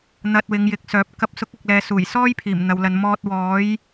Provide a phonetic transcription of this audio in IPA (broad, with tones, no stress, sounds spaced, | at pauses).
n̪ ɐ˧ t̚ w ɪ˨˧ ŋ j ɪ˨˥ k̚ s œː˨˥ p̚ k ɐ˨˥ p̚ s ʊ˨˥ k̚ ɐ˨ k̚ l ɛː˨ s uː˨˩ j s ɔː˥ j pʰ iː˨˩ m n̪ ɐ˨ w l ɐ˨˧ n m ɔː˧ t̚ w ɔː˨˥ j